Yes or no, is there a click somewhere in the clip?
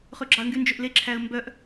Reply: yes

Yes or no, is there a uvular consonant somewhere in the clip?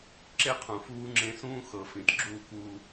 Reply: yes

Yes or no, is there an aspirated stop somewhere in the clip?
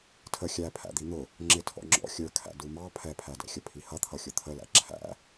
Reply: yes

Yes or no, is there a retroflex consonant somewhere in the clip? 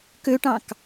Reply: yes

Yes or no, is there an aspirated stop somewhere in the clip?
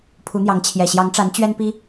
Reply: yes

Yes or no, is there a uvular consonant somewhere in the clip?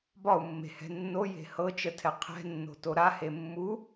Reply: yes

